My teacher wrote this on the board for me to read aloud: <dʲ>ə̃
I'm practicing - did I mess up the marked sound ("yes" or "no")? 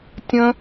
yes